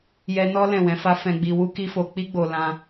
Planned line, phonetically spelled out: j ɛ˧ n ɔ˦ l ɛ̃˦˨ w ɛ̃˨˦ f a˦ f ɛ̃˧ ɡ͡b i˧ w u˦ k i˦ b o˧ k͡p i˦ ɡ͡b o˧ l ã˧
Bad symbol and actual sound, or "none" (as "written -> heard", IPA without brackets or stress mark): b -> f